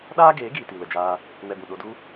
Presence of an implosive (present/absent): present